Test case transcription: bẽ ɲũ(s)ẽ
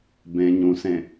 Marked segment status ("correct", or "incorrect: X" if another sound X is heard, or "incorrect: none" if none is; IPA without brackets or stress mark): correct